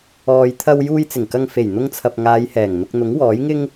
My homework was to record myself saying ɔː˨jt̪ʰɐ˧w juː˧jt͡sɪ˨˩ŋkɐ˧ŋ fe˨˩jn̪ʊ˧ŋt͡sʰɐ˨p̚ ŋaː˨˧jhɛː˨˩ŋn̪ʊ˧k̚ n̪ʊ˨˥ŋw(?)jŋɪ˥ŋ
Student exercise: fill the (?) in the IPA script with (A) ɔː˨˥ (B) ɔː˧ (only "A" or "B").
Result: A